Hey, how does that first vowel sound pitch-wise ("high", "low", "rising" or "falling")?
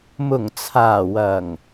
low